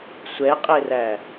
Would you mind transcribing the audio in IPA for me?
sʷɛqʼeræ

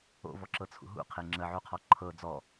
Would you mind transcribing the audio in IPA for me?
o̰vɔǁɤt͡sʰṵ ɦṵqʰe ŋ͡ǁəʕuqʰɔ ǃʰɤ d͡zɔ

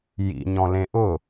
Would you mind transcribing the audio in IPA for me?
jḭɲɔ̃lẽ ʔʊ

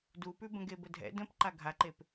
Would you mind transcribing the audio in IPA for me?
dupʉ bə̃ɡebədʱɛ̰ də̃pǃa ɡʱaǃep

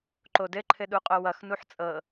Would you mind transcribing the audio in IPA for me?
ǃodɘ ǃʰɘɗuqʼowʌx nuħt͡sʼɤ

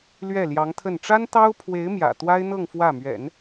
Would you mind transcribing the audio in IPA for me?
lɥɛ˥˩ljɑ˧˥ŋt̪ʰə˥˩n ʈ͡ʂa˥nt̪ɑ˥ʊ̯pʰwe˧˥ɪ̯mjä̰˨˩ t̪wa˥ɪ̯n̪ɤ˥˧ŋ fwä˥˩mɥɛ̰˨˩˦n

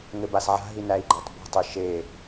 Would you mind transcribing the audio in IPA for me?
ŋɘbasʕa̤ɦi næi̯ɡ͡ǃɜtˤbṳtˤi ʃe

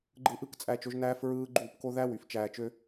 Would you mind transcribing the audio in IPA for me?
ɡ͡ǃɯ˧ʔɯ˦˨kt͡sʼæ˧t͡ʃo˧ʒ næː˦fɹɯː˦ ɡ͡ǃuː˦˨pko˦ ðæ˦wy˨f t͡ʃæː˧t͡ʃø˦

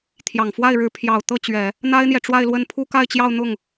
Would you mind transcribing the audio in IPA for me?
t̪ʰjɑ˨˩ŋfwa˥˩ɪ̯ɻɻ̩˧˥ pʰjɑ˨˩ʊ̯ t̪ɤ˥˩t͡ɕɥɛ˨˩˦ | n̪a˥ɪ̯n̪jɛ˨ʈ͡ʂwa˥˧ɪ̯lwə˥˧n pʰu˥˧ka˥˧ɪ̯t͡ɕjɑ˥˧ʊ̯ n̪ʊ˥˩ŋ

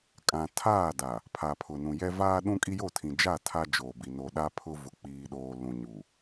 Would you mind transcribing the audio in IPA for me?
kʼã˨ tʰaː˦˨da˨ | pʰa˨pʰʊ˨nũ˨jɛ˦ vaː˦ɗũ˦ kʼi˦jo˦˨tʰĩ˨d͡ʒa˦˨ tʰa˦d͡ʒoː˨bi˨ no˨ɗa˦pʰʊ˦ vʊ˨k͡piː˨ɗoː˨ lũ˨ɲu˨

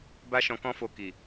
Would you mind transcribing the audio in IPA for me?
ba˦ʃɔ̃˧kɔ̃˦ fo˧ ki˨

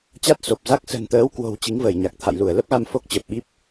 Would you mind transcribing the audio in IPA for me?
t͡ɕa˦˥t̚so˨˩p̚za˦˥k̚ sə̤˨˩nt̪əː˨˦w kwo̤˨˩w t͡ɕi˨˦ŋvəː˧˩jɲa˨˩k̚ t̪ʰa̰˧˨jlu˧˩ə̯lə˦˥p̚ɣa˧m fo˦˥k̚t͡ɕə˨˩p̚ɓi˦˥p̚

